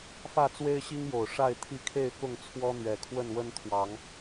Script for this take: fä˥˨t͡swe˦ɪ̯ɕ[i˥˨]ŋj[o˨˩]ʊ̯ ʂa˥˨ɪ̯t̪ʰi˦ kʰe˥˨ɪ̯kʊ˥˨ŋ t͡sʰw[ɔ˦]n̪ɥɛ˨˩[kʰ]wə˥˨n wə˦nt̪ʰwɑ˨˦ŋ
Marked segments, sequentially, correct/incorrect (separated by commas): incorrect, correct, correct, correct